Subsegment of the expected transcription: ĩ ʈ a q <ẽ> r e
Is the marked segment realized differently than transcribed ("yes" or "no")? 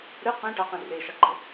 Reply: yes